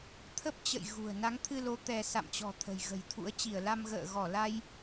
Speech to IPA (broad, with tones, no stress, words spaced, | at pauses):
t̪ʰə˦˥p̚t͡ɕə̰˧˨j ɣṳ˨˩ə̯ na˨˦ŋt̪ʰɨ˧lo˨˦ t̪ɛ˧ sa̰˧˨mt͡ɕɔ̤˨˩ t̪ʰə̤˨˩jɣə̤˨˩jt̪ʰṵ˧˥ə̯ t͡ɕi˧˩ə̯la˧m ɣə̰ː˧˨ɣɔ˧˩la˧j